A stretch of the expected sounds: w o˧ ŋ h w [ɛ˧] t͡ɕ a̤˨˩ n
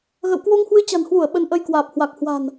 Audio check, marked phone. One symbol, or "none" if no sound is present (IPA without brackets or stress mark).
ɨ˧